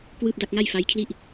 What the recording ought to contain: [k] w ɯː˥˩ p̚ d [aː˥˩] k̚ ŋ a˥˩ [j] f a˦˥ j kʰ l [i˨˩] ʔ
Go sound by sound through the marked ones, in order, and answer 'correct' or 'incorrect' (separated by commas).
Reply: correct, incorrect, correct, incorrect